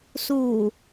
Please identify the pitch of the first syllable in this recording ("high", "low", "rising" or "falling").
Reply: low